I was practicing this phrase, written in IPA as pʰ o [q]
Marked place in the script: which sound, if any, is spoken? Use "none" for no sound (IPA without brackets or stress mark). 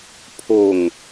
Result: ŋ